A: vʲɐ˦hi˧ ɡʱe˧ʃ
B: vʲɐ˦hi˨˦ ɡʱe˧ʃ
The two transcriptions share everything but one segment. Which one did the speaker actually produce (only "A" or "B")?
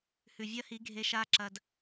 B